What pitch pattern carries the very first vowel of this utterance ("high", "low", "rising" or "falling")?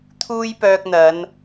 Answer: high